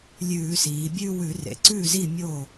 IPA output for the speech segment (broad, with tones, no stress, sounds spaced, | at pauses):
lʲ ʉː˧˩˧ s iː˩˧ bʲ ʉ˥˧ w ʉ˧˩˧ r ḛ˩˧ ǀ ʉː˥˩ z i˥˩ mʲ oː˥˩